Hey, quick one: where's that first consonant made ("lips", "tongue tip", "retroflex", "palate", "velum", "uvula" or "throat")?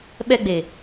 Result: lips